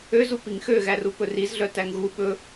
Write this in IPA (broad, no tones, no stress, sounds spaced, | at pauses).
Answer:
ø z u p i ŋ x ø ɣ æ r u p ɵ r i z ɮ œ t æ ŋ ɣ u ɓ ɵ